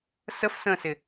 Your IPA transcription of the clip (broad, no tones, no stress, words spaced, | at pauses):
səf sə̃sɪ